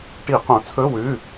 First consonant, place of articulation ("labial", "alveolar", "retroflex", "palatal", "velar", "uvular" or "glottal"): retroflex